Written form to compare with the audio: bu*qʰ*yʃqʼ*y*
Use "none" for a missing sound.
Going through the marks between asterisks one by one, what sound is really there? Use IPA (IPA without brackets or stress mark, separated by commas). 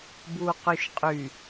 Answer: q, y